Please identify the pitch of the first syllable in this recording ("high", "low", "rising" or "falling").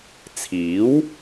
rising